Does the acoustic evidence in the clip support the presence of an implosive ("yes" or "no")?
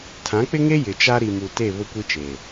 no